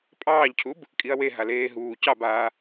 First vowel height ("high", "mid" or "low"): low